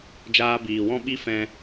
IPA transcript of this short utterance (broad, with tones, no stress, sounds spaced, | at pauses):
d͡ʒ aː˧ b iː˨ w ɔ̃˦ ɓ i˦ f ɛ̃˧